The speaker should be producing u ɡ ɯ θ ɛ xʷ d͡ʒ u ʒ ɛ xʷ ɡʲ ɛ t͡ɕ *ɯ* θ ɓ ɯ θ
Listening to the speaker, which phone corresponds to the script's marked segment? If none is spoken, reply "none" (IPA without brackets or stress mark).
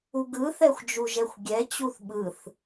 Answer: u